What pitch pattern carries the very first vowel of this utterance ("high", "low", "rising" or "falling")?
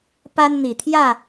high